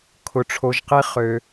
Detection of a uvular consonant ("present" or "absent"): present